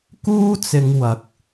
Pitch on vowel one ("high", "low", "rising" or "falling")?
high